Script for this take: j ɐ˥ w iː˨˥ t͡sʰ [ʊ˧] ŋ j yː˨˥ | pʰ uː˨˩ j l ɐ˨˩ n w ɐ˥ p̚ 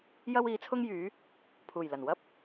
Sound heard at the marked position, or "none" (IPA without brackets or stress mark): ʊ˥